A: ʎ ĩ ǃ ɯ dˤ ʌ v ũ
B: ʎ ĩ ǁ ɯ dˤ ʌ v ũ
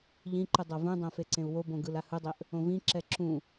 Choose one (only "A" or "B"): A